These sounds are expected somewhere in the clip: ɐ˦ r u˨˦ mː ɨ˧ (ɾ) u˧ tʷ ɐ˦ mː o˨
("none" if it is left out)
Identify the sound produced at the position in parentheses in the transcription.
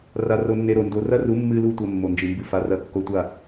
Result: l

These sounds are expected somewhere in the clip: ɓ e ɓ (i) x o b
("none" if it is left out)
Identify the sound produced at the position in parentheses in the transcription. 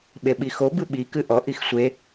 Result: i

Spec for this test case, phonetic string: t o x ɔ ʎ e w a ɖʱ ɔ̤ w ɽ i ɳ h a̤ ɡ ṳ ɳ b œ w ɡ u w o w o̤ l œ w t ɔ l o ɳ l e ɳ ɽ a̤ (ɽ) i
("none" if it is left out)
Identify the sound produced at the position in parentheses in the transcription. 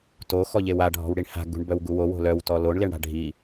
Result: ɖʱ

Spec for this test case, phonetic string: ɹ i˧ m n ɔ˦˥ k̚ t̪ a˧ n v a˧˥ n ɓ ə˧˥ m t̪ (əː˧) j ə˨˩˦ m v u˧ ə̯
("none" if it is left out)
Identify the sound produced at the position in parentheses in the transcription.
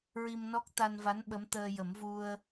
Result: əː˧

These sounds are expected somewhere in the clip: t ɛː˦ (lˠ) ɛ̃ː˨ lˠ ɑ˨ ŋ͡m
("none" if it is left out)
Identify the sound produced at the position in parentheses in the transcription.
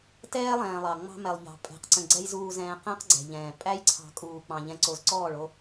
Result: lˠ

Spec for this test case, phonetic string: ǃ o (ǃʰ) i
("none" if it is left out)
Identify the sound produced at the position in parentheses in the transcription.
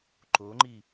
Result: ŋ͡ǃ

